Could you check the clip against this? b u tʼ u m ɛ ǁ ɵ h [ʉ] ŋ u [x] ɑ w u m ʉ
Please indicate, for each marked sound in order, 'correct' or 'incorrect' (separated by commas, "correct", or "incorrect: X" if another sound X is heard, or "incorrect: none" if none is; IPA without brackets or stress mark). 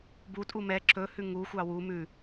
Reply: correct, incorrect: xʷ